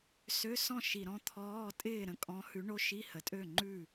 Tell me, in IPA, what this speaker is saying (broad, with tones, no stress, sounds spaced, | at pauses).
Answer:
s ø˧˥˧ s ɔ̃˥˩ ʃ i˨˩ ɾ ɔ̃˧˥˧ t̪ʰ ɔː˧˥˧ tʼ ɪː˥˩ ɾ ə̃˥˩ kʼ ɔ̃˨˥ h ʉ˨˥ ɳ o˧˥˧ ʃ i˧˥˧ h ə˩˧ tʼ ø˥˩ ŋ͡ǃ ʉ˥˩